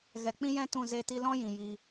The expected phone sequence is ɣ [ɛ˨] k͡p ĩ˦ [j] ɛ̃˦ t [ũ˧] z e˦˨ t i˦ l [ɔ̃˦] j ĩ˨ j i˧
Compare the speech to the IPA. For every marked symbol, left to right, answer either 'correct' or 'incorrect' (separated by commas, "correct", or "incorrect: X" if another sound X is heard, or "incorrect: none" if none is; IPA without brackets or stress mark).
correct, correct, incorrect: ũ˦˨, correct